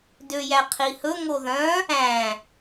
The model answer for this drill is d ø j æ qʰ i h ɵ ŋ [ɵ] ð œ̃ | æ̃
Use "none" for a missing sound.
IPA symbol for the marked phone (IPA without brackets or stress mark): o